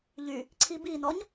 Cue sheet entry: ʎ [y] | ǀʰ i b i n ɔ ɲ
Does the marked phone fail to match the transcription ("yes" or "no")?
no